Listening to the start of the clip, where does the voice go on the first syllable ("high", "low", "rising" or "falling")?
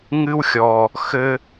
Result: high